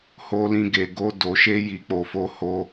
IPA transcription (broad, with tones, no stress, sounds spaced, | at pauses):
h o˧ l ĩ˧ ɡ e˨ ɡ o˧ d o˨ ʃ e˧ j i˨ k͡p o˨ f o˧ h o˧